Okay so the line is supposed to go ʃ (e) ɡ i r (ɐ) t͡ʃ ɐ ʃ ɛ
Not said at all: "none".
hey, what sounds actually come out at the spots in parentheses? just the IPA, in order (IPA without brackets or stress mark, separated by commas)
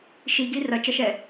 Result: i, ɐ